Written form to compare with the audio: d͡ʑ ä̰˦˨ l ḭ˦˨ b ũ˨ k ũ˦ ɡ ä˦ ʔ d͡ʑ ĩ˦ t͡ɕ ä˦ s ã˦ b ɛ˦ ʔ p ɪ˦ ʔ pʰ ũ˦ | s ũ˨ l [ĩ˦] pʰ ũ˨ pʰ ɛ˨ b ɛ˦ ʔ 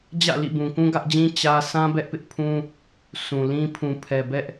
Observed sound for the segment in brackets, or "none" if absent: ĩ˦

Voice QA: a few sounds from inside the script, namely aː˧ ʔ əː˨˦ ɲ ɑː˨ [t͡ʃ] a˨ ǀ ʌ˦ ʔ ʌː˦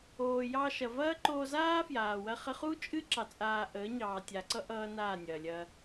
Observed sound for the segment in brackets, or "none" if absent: tʲ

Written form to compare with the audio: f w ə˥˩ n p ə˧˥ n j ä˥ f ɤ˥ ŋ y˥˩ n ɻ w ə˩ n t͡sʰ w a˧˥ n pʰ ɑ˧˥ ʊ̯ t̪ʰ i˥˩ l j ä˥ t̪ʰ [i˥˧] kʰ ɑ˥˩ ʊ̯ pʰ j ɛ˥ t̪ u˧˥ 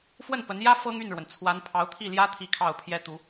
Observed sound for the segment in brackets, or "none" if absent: i˥˧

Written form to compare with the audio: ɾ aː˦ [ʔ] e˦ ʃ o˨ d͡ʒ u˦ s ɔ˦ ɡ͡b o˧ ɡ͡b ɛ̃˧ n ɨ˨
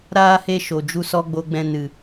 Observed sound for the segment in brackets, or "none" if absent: h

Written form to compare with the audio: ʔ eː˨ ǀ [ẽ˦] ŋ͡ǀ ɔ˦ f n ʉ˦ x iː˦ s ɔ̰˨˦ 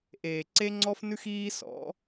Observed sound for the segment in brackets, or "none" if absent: e˦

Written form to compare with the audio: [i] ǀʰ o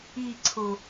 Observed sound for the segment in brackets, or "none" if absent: i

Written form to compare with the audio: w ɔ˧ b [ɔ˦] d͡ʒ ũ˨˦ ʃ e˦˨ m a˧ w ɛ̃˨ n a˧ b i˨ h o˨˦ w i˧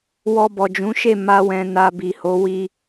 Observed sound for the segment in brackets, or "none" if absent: ɔ˨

